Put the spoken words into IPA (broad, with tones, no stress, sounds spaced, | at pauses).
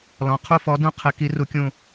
l ɔ̃˨˦ qʰ u˦˨ f ɔ˨˦ d ũ˦˨ qʰ ɘ˨˦ k i˨˦ r u˨˦ kʲ ũ˦˨